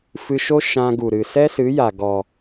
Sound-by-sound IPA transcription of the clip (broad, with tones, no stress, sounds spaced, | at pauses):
f ɨ˧ ʃ o˦ ʃ ã˧ ɡ u˨ ɾ ɨ˨ s ɛ˦ s ɨ˨˦ j a˨ ɡ ɔ˨